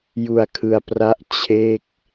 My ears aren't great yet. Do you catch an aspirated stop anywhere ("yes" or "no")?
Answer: yes